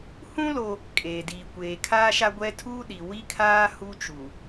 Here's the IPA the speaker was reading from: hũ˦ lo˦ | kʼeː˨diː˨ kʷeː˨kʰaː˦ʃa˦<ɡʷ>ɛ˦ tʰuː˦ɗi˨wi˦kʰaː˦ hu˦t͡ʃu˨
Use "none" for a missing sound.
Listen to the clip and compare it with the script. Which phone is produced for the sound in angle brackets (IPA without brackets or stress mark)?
ɡʷ